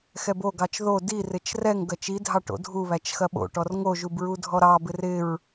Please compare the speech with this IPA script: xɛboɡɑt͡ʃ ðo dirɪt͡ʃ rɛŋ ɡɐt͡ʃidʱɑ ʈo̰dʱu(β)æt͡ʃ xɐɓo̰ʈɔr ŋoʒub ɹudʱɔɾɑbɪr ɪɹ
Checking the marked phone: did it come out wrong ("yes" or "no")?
no